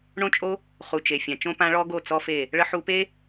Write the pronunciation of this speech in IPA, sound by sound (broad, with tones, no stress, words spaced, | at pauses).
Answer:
ɳõ˦t͡ʃʼo˦ | χu˨t͡ʃe˨fʲã˨ t͡ʃõ˦pã˦ ɭɔ˦ɡo˦˨ t͡sɔ˦fe˦˨ | ɭə˦ ħu˧pe˦